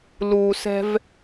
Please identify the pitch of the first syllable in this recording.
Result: low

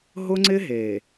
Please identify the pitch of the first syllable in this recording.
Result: high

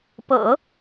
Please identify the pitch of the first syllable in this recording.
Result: low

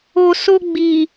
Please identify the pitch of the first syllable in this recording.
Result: low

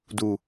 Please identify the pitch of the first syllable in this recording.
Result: low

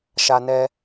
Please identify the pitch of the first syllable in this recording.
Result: high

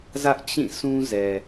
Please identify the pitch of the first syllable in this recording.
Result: high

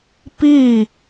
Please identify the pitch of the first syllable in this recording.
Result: falling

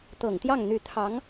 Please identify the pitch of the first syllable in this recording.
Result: low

